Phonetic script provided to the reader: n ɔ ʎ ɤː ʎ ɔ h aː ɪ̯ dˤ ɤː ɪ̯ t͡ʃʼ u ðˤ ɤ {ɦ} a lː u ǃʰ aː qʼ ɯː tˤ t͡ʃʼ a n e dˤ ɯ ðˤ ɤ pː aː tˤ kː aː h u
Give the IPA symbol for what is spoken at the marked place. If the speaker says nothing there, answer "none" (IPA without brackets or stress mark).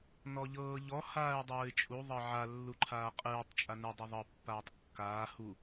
ʕ